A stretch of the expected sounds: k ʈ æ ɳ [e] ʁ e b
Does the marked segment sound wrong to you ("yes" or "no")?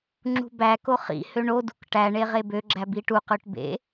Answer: no